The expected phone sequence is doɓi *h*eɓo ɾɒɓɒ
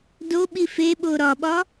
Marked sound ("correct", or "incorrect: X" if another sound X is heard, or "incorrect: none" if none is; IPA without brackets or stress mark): incorrect: f